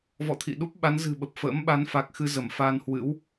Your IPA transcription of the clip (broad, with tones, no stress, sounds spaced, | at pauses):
v ɔ̰˧˨ t̪ʰ ḭ˧˨ ɗ u˦˥ p̚ ɓ a˨˦ n z ɨ̤˨˩ ɓ ə˨˩ p̚ f ə̰ː˧˥ m ɓ a˨˦ n f a˨˩ k̚ x ɨ˧ z ə˧˩ m f aː˧ n h w ɨ̰˧˥ w